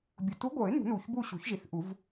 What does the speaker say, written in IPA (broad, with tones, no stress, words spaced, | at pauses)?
bʲʊ˨˩ tu˧˥ɡʷɤ˨˩˦ɪ̯ nṳ˨˩˦nu˨˩çbu˦˨ ɕṳ˨˩˦çʒi˨˩θʔu˨˩˦v